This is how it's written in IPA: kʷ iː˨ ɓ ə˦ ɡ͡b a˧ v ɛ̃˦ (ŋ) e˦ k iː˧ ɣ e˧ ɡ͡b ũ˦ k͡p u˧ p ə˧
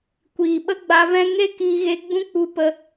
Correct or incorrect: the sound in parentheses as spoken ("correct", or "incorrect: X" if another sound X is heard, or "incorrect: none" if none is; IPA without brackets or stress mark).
correct